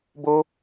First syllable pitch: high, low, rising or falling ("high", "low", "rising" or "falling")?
high